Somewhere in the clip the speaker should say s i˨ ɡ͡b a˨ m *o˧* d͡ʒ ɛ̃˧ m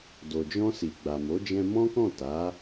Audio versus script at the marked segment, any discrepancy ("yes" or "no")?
yes